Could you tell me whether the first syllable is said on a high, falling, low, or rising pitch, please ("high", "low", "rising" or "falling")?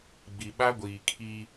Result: low